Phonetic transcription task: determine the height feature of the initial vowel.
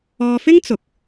mid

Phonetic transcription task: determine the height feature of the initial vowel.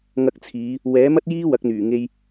low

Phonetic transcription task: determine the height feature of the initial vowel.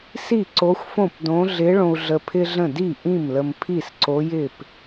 high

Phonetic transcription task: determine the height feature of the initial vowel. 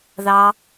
low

